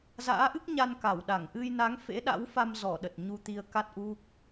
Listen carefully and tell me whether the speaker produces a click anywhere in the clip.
no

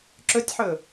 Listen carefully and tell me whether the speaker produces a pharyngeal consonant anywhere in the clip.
yes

